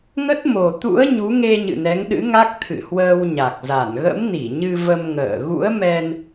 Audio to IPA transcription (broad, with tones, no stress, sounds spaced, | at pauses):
ŋ ə˦˥ t̚ m o˨˩ t̪ ṵ˧˥ ə̯ ɲ u˨˦ ŋ e˧ ɲ ɨ̰˧˨ n ɛ˨˦ ŋ ɗ ɨ̰˧˥ ŋ a˦˥ k̚ t̪ʰ ɨ̰˧˨ h w əː˧ w ɲ a˨˩ k̚ z a˧˩ n ɣ ə̰˧˥ m n i˧˩ ɲ ɨ˧ v ə˧ m ŋ ə̰ː˧˨ ɣ ṵ˧˥ ə̯ m ɛ˧ n